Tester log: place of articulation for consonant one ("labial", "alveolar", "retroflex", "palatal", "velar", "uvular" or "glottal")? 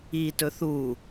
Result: alveolar